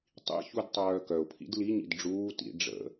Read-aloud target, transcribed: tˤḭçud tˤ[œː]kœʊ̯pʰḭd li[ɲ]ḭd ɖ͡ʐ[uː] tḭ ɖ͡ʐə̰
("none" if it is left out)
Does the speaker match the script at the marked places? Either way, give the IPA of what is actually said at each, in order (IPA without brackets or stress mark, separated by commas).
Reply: œː, ɲ, uː